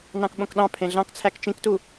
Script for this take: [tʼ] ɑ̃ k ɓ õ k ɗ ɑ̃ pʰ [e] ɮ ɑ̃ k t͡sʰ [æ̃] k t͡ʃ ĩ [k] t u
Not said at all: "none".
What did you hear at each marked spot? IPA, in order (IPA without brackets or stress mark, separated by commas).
n, ẽ, æ, k